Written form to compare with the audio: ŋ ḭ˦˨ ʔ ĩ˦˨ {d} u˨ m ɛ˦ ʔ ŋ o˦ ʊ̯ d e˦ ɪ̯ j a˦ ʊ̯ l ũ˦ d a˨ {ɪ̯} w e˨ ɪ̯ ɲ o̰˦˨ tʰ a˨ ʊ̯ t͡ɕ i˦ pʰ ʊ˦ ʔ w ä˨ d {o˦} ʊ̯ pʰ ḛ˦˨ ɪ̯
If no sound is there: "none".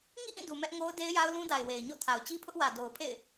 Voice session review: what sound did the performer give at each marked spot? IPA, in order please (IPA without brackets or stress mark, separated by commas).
d, ɪ̯, o˨